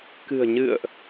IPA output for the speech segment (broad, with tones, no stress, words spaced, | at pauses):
kɨ̤˨˩ə̯ɲɨ̰˧˨ə̯ʔ